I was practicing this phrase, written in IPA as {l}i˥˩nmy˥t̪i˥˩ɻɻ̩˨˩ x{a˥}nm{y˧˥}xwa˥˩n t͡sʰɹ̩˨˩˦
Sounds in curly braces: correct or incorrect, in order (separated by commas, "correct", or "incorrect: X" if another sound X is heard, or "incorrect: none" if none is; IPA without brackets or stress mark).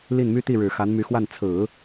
correct, incorrect: a˧˥, correct